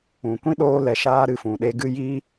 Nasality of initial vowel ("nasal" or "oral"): nasal